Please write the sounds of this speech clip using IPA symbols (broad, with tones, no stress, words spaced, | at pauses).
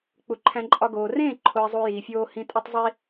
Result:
k͡pu˨ǃʰæ̃˧ǃʼɒ˧ ɡoː˨ rẽː˦˨ǃʰo˨ɪ̯zˤu˨ jiː˨fʲoː˦ hĩ˧tʼe˦tˤzˤi˦